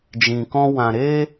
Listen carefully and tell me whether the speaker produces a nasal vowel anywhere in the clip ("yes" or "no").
yes